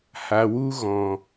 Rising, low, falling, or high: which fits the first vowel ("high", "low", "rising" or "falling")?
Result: low